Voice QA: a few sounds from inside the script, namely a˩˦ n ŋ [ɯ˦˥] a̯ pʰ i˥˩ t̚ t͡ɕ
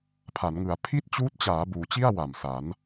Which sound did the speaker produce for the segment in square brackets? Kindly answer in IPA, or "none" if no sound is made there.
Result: ɯ˩˦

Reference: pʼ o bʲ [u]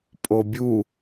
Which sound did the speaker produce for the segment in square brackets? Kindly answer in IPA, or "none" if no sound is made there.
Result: u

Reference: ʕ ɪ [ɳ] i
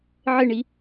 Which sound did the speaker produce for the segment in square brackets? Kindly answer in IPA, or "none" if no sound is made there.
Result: ɳ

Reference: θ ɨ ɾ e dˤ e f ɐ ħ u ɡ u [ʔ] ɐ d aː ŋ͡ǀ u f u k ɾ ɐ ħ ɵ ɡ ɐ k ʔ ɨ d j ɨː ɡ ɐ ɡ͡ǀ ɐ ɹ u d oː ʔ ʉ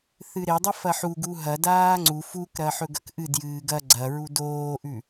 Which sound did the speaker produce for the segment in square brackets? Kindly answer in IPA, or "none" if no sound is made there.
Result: ɦ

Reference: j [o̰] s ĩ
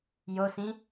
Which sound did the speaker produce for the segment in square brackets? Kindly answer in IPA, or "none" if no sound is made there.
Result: o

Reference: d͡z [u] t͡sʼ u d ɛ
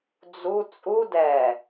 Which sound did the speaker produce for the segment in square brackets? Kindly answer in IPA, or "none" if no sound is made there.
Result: u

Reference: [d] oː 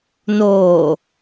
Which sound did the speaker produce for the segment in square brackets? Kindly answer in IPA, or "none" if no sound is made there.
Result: n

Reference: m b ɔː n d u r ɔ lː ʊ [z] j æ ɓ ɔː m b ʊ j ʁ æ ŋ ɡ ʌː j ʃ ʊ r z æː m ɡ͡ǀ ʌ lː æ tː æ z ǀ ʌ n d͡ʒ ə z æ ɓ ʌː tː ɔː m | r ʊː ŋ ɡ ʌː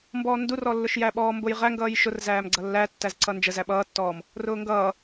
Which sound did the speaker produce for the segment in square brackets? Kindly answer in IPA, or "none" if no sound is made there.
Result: ʃ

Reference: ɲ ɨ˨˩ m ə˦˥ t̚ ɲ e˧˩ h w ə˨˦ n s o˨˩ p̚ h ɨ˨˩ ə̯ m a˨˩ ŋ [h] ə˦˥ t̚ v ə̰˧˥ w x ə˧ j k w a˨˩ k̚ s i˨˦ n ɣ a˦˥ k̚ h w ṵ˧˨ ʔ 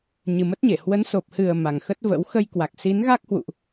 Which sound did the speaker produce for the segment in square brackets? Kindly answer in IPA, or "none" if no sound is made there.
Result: x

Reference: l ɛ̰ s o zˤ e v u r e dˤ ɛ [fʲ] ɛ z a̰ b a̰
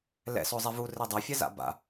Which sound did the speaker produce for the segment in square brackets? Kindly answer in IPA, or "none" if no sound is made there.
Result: fʲ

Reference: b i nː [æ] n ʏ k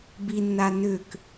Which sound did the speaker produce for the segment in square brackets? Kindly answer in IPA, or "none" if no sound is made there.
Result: a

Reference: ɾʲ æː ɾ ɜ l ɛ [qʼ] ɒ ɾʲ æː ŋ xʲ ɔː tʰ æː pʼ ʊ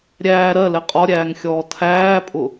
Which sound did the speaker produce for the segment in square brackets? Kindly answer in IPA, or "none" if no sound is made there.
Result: qʼ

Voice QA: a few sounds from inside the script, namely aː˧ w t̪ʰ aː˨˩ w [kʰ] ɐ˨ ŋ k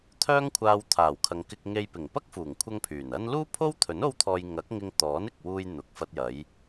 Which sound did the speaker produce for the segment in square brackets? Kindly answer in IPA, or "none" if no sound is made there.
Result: kʰ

